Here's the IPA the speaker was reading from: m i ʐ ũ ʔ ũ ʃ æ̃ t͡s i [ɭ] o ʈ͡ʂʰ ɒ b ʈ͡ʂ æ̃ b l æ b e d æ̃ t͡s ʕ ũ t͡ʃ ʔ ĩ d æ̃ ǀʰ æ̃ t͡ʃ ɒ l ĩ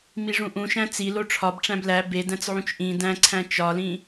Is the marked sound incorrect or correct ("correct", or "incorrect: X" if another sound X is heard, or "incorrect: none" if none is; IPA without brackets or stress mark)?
incorrect: l